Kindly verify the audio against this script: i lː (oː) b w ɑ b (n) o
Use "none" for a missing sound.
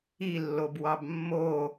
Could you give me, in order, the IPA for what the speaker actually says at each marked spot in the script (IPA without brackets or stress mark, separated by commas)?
o, mː